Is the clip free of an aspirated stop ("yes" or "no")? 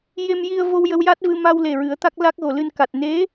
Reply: yes